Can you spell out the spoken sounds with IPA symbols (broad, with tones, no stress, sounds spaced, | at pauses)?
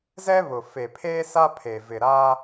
z ɛ˦ β ʊ˨ f e˨ pʰ eː˦ s a˦ pʰ e˨ v ɪ˨ ɾ a˦